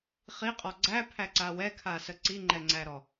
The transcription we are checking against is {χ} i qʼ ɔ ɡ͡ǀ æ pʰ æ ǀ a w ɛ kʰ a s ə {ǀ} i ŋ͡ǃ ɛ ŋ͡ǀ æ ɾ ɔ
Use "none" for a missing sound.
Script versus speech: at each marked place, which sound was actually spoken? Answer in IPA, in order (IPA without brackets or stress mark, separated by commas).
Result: χ, ǀ